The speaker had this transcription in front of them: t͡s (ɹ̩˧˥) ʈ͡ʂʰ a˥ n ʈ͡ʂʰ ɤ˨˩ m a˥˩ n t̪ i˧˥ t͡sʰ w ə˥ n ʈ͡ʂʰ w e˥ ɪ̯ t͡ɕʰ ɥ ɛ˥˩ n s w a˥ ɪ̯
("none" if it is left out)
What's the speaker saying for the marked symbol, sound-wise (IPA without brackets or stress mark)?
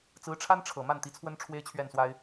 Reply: ɹ̩˧˥